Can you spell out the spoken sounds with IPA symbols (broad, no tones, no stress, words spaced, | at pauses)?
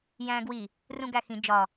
jæ̃ːɡwi | rũɡæxĩ d͡ʒɒ